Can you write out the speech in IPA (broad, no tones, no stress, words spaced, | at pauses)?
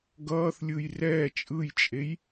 ɡʌːθlʲɯj rɛː t͡ʃʼɯjt͡ʃʼej